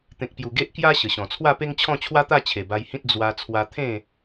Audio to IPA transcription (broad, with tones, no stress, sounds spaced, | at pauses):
t̪ ẽ˨ k̚ p j u˨˩ ɡ e˦ ʔ k j a˦ ɕ ə˨˩ ɕ ɔ̃˨˩ t͡sʰ w a˥˧ p e˦ ŋ t͡ɕʰ ɔ̃˥˧ t͡ɕʰ w a˦ t̪ a˥˧ t͡ɕʰ e˨˩ b a˧ j h ĩ˦ t̚ d͡z w a˧ t͡sʰ w a˧ t̪ʰ ẽ˥˧